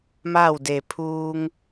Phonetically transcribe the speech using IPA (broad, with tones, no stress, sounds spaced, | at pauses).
m a˥˨ w d e˧˩ pʰ uː˧ ŋ